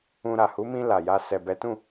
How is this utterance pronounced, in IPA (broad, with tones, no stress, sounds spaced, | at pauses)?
ũ˧ ɾ a˨ h u˨˦ m ĩ˧ l a˨ j a˧ s ɛ˨ b ɛ˨˦ t ũ˦˨